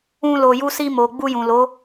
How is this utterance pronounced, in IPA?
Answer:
ũ˧lo˨ ju˧si˧mo˨ ɡ͡bu˧jũ˨lo˨˦

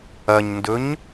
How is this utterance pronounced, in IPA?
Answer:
ɐɲndɵɲ

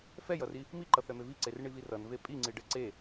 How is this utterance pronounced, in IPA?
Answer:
fɛjʌri | miǃʌθɛme viǀerɳivi rʌnve pʼiŋ͡ǀiɖɛ ǀe

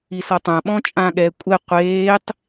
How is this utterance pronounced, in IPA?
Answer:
isɔtˤã ɓɔ̃t͡ʃʼãːɠɛːkʷʼɛ qʷeːtˤ

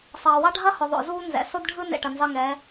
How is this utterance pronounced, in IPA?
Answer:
sˤɑː˨wɑ˦ ɖʱɐ˦hʊ˨ðˤo̰˨ zuː˦nzɛ̰˨ so˦dɖʱɯ˦nḛ˨ ʈɐ˨nzɑ˦ŋɛ˨˦

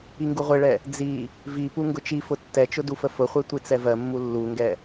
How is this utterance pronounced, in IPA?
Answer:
iŋɡuʁʷeɭɛ | d͡zi | vipu ŋɡʊt͡ʃifʊ tːɛt͡ʃʊ dufəfʊχʷe tʷit͡sɛvɜmːu lːuŋɡɛ

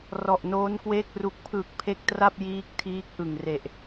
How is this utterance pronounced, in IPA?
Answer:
rɔ˨˩ʔnoː˦˥nkweː˥˩k̚ ru˨˩k̚pʰɯː˨˩k̚ pʰe˦˥k̚tra˥˩p̚ jiː˦˥k̚tʰiː˦˥k̚ ʔɯ˨˩ŋre˨˩ʔ

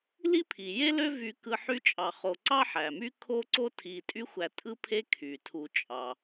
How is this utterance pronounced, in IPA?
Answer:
li˦pʰi˩je˦ lø˥vy˨kɯ˨ ħy˦t͡ʃʼɑ˨χo˨ ǀɑ˥ħæ˩my˥ kʰo˥ǀo˥ tʰi˨tʼy˦xʷæ˨ tʼɯ˥pʰe˥kʰy˩tʰu˨ t͡ʃʼɑ˩

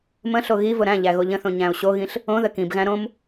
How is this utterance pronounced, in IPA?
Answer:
mə̃ɬo ɣivʊ ɾæ̃ʎæ ɣoʎə̃θõ ɲæ̃o̯ɕoɣĩɬ | õ ðəkĩbɣæ̃ ɾõm

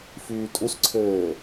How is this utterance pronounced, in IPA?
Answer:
fyːtʼusǀʰɘː

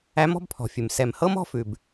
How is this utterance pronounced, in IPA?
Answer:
æ˨˦mɔ̤˦bpʰɔ̤˩fʲʉ˩m sɛ˩mhɤ˦m ɔ̤˦fʉ˩b

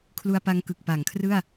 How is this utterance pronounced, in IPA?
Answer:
kʰlu˧a̯pa˧ŋkɯ˨˩k̚ pa˩˦ŋkʰrɯ˥˩a̯

